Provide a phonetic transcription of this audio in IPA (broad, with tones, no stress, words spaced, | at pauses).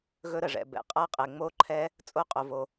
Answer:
ɣɵ˦˥ɾə˩ʐɛ̰˩ bɛ̰˩ qʼa˦˥qʼɛ˩ ŋ͡mo˦˥ǃʰɛ˦˥ | t͡sʼo˦˥qʼo˩vo˩